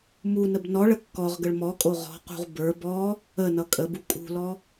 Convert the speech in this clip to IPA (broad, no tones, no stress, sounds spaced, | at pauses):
m u n ə b n ɔ ɭ ə kː ɔ ʁ ɡ ə ɭ m ɔ kʼ o ʁ ɔ̤ q ṳ ʁ b ə˞ b ɔ | ə n ʌ kʼ ə b u kʼ ṳ l ɔ